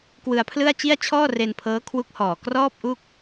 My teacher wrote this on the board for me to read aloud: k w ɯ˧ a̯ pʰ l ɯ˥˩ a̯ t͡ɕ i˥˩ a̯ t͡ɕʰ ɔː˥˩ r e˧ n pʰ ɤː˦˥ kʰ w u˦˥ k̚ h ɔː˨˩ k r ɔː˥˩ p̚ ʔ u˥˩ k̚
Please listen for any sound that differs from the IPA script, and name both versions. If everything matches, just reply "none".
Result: none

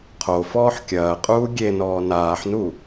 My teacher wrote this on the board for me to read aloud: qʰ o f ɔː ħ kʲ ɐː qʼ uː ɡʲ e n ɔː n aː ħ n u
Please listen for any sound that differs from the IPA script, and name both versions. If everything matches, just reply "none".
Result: none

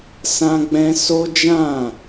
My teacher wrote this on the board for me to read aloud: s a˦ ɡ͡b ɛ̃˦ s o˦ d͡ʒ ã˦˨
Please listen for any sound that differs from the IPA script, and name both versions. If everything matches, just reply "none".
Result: a˦ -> ã˦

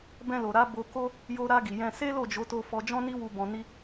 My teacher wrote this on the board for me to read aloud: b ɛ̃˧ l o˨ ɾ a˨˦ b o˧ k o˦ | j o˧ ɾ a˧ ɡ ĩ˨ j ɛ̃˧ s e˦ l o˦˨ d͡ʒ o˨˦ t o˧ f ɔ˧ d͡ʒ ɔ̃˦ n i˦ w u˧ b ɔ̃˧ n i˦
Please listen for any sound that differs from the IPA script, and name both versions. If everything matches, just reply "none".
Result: ĩ˨ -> i˨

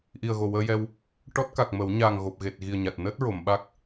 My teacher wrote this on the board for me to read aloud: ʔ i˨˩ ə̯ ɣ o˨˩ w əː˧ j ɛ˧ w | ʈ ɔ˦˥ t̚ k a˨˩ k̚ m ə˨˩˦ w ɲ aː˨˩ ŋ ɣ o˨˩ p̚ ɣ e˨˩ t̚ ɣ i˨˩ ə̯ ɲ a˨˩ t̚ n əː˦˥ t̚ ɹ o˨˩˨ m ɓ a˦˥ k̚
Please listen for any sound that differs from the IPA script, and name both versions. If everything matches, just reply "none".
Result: none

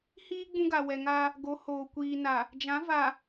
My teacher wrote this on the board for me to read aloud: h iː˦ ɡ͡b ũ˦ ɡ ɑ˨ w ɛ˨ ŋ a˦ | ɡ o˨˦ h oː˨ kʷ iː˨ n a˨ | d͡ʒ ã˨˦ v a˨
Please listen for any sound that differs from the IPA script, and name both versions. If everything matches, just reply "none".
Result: ɑ˨ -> a˨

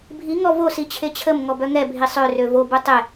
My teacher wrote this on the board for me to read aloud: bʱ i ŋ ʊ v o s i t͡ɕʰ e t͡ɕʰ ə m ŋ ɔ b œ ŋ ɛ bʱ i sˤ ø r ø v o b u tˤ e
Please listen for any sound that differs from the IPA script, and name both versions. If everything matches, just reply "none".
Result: ʊ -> ɔ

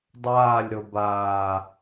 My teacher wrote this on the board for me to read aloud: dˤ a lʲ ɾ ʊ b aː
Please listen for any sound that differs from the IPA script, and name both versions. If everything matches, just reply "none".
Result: a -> aː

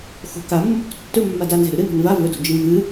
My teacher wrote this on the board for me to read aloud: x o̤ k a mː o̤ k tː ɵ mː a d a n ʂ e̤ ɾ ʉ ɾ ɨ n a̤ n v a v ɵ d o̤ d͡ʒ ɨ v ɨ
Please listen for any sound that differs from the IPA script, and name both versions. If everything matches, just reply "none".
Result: ʂ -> z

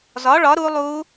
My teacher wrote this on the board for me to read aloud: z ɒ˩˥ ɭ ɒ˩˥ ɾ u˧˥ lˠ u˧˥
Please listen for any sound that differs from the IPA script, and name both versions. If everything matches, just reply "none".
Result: none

